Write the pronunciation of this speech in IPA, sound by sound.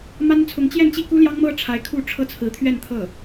m a˥ n t͡sʰ ʊ˧˥ ŋ t͡ɕ j ɛ˥˧ n t͡ɕ i˥˩ k u˥ l j ɑ˥ ŋ m ɤ˥ ʈ͡ʂʰ a˧˥ ɪ̯ kʰ u˥˩ ʈ͡ʂʰ ɤ˥ t͡sʰ ɹ̩˧˥ t̪ʰ ɥ ɛ˥˧ n t̪ʰ ɤ˥˩

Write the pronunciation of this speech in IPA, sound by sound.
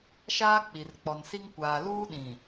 ʃ aː˦ k͡p i˨ r k͡p ɔ˨ n s i˦ ŋ kʷ aː˨ l uː˦ ɗ ĩ˨

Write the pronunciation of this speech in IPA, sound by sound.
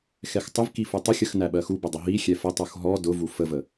x ɛ x tˤ ʊ v k i f u tˤ ə xʲ ə x n æ ɓ ɜ x u b ʊ dˤ ʊ ɦ i xʲ ɛ f ə tˤ u x ɦ ɔ d ʊ v u f ə v ə

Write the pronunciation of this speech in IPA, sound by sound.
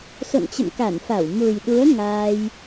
s o̰˧˨ n t͡ɕ ə̰˧˨ m k a˧˩ n f a˧˩ w m u˨˩ j ɗ u˨˦ ə̯ ŋ aː˧ j

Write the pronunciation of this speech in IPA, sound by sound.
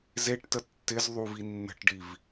z e ʈ t ə tː ɪ z ðˤ u v i nː ə̤ ʈ ɖ i v

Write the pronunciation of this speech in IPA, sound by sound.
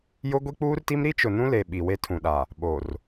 j ʊ˦ ɡʷ i˦ k͡p uː˦ r t i˦ m ɾ i˦ t͡ʃ ʊ˨ n ũ˦ l e˨ ɓ i˨ w e˦ tʰ ũ˨ ɗ a˨ | ɓ o˨ r

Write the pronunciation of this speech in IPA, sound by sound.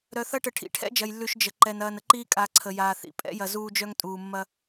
ɾ œ˨ θ ɐ˦ ʈ ə˨ ʈʰ ḭ˨ ʈʰ ɛ̰˦ d͡ʒ ɐ˨ j lː ʉ˨ ʃ d͡ʒ ə˨ ǃ ɛ˨ n ɐː˨ n ə˦ ǃ iː˦ kʼ a˨ ǀʰ ə˨ j aː˨ θ ḭ˨ pʼ ɛ̰˦ j ɐ˨ z uː˦ d͡ʒ œ˦ ŋ tʼ uː˨ mː ɐ˦

